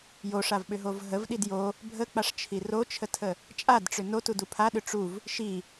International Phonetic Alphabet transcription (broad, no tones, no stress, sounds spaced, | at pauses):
j o ʂ a v ɓ ʏ ɦ o v ɦ ə v ɗ i d j o | bʱ ə k͡p a ʂ t͡ʃʰ i r o t͡ʃʰ ə tʰ ə | t͡ʃʼ a d ʈ͡ʂ ʏ n o t u d u pʰ a ɗ ʏ ʈ͡ʂ u v | ʃ i